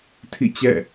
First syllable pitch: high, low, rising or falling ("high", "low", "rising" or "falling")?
falling